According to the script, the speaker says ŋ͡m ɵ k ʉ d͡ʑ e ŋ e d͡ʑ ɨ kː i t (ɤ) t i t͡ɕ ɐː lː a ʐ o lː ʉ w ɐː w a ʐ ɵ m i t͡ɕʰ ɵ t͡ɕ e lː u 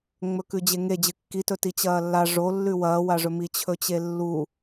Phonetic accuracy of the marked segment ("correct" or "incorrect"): incorrect